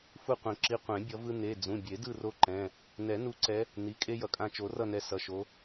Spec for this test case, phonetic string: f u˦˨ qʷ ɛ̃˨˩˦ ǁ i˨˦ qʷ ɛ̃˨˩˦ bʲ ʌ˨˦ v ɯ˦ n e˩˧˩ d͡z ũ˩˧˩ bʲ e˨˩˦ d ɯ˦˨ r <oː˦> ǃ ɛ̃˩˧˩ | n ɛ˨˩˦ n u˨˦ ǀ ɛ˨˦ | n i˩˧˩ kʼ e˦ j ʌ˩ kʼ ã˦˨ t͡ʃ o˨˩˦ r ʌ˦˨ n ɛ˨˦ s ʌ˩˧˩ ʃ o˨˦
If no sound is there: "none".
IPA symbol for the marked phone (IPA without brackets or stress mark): o˦